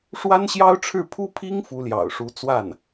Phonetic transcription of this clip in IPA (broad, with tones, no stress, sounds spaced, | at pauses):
ʂ w a˥ n ɕ j ɑ˥ ʊ̯ ʈ͡ʂʰ ɻ̩˥˩ pʰ u˥ pʰ i˥ ŋ f u˧˥ l j ɑ̰˨˩ ʊ̯ ʂ u˧˥ t͡s w a˥˩ n